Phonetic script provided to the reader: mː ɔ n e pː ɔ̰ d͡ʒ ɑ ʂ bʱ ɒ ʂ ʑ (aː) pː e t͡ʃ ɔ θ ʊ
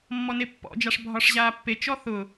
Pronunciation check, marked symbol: correct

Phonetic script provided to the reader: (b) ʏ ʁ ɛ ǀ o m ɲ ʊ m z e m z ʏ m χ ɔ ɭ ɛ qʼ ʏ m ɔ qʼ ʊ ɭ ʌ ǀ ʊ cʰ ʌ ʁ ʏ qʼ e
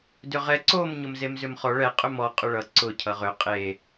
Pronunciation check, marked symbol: incorrect: d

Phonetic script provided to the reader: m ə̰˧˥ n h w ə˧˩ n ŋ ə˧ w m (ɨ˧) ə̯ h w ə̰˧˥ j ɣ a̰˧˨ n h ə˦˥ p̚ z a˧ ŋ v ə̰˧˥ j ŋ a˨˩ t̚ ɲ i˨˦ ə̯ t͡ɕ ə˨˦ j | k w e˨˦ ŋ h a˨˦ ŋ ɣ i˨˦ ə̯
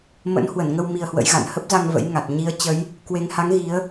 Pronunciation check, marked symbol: incorrect: i˧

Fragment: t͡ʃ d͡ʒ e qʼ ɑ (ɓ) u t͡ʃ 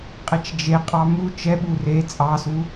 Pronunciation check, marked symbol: incorrect: m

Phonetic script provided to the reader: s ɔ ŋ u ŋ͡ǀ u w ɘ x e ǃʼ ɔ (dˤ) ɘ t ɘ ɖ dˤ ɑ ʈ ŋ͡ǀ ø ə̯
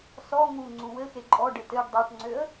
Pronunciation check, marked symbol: incorrect: ɖ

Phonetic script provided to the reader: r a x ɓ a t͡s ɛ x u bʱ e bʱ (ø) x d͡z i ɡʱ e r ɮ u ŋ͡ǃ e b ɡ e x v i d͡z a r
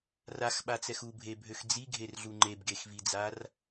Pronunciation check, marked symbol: correct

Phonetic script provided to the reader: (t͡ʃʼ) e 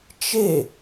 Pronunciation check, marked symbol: incorrect: t͡ʃ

